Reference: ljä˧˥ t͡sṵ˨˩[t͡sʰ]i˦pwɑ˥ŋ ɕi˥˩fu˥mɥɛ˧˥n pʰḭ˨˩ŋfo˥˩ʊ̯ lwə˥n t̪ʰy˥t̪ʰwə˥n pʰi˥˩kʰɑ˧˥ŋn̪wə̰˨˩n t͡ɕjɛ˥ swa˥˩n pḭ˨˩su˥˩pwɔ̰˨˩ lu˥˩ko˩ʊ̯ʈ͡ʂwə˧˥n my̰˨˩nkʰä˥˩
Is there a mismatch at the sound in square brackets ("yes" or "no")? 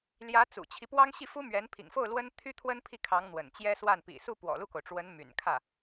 yes